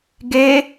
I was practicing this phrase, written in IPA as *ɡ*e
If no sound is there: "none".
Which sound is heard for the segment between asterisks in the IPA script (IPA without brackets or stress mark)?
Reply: ɡ